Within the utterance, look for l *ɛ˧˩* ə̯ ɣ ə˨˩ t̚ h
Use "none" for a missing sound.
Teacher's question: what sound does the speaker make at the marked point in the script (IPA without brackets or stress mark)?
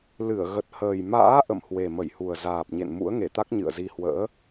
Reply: ɨ˧˩